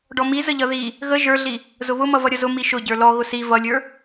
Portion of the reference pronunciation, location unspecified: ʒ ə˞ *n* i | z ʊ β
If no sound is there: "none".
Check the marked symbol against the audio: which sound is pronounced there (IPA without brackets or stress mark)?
ɮ